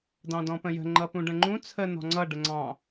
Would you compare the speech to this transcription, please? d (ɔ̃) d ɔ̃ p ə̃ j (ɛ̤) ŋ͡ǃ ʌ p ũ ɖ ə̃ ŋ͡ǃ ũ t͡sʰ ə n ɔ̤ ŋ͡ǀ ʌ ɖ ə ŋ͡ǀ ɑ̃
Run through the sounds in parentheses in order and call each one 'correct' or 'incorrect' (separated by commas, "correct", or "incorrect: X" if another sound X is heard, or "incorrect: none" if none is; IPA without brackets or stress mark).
incorrect: ɑ̃, incorrect: ə̤